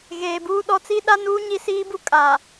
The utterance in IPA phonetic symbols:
ɣ eː˨ b uː˦ ɗ ɔ˦ t͡s i˦ ɗ a˦ n uː˦ ɲ i˦ s iː˦ b u˦ kʼ a˨

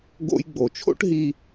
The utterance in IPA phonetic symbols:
ɡ o̰˧ j ɡ͡b o˩ t͡ʃʰ o̰˥ ʈ ɦ i˧

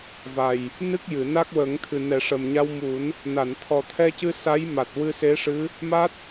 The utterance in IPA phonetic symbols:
v a˨˩ j | n ɨ˦˥ k̚ j ɨ˨˩˨ n a˦˥ k̚ w əː˨˩˦ ŋ t̪ʰ ɨ˨˩ n ɛ˨˩˦ ʂ ə˨˩ m ɲ a˧ w m u˨˩˦ n | n a˨˩˨ n t̪ʰ ɔ˨˩ t̪ʰ ɛ˧ c ɨ˧ s a˧˥ j m a˨˩ t̚ w ɨ˧ s e˧˥ ʂ ɨ˧˥ | m a˦˥ t̚

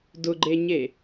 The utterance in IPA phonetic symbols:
d ʊ ɡ͡ǃ e ɲ e

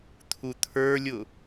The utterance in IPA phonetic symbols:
t̪ʰ u t̪ʰ ə˞ lʲ ʊ

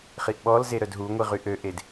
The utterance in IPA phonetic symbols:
χ i ʔ ɓ ɔ l z e ɾ œ d ɦ u ŋʷ i ʁ y ʔ ø ʔ e d

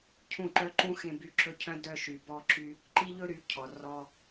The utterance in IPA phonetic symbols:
cʰ ũ˥˩ ǃ œ˥ ǃ ũ˥ x ẽ˧ b y˧ ǁ ɵ˥ cʰ œ̃˥ d œ˧ ʃ y˩ b ɔ˧ ǁ y˧ | ǃ i˥ ʎ ɵ˥ ɾ y˩˥ cʰ ɔ˩ r ɔ˧

